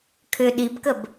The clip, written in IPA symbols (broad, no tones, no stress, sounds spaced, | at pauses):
kʰ ʏ ɗ i b k ə b